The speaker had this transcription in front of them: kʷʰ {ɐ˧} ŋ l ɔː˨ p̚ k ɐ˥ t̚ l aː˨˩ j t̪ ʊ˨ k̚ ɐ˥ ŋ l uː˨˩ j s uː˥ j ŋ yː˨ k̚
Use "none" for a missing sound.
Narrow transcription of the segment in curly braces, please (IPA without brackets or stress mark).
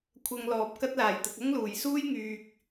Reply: ɐ˧